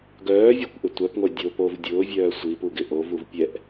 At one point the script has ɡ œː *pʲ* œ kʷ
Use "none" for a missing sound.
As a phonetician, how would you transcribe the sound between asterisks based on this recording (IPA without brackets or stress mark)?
vʲ